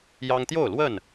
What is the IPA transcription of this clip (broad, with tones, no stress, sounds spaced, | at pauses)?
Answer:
j ɑ˦ ŋ t̪ j o˥˨ ʊ̯ l w ə˥˨ n